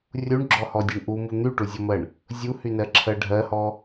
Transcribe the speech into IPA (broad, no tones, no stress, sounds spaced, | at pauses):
rʲ u ɳ ɡ͡ǁ ɔ h ɔ dʲ o ɳ ʔ u m u n̪ y ʈ u zʲ ɔ m ɜ ɳ | zʲ u h y n ɜ ǁʰ ɜ ɖʱ ɜ h ɔ